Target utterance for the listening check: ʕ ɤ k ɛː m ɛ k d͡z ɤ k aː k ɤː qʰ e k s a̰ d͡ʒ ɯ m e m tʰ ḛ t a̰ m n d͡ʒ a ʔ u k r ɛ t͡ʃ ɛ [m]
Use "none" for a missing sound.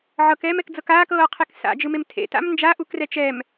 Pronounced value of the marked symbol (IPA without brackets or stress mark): m